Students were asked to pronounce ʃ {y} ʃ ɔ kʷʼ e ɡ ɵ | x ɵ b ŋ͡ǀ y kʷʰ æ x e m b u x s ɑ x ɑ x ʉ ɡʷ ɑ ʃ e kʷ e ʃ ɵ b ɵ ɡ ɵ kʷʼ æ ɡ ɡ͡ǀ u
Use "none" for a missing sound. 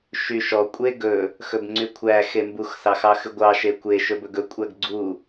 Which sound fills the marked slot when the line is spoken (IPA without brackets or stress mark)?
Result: y